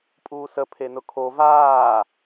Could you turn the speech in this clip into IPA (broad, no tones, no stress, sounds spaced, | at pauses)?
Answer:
pʼ uː s ə pʰ e n ʊ kʰ o v aː